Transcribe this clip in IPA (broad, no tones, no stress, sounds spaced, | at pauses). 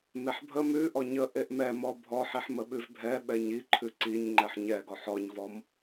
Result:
m e ħ bʱ ə m ʉ ʔ ɔ ɲ ə ʔ e ʔ m ɛ m ɔ bʱ ɔ ħ i ħ m ə ɓ ʉ v bʱ ɛ ɓ ɛ ɲ i ǃʰ ʉ ǀ i ɲ ŋ͡ǃ ɛ ħ ɲ ɛ ɡ ɔ ħ ɔ ɲ v ɔ m